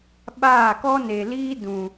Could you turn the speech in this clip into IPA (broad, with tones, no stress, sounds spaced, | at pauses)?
ɓ aː˦˨ k ɔ˦ n e˨ l iː˦ d ũ˨